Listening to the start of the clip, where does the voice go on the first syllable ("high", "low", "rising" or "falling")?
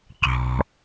low